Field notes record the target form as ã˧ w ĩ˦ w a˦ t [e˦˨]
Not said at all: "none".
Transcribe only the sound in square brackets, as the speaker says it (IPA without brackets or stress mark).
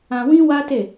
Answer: e˦˨